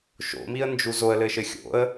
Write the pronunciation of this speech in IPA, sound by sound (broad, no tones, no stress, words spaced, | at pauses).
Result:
ʃo̰miə̯nd͡ʒu zoə̯lɘʃɘ xʲo̰ə̯